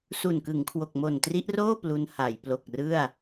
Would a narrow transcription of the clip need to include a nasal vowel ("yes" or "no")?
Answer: no